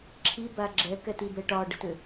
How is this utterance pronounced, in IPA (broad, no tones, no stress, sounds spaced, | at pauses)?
ǁʰ i b a ɡ͡ǁ ɛ k ɛ t i b ɛ ʈ ɒ ɖ ə t ʏ